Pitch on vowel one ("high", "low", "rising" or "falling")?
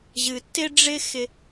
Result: low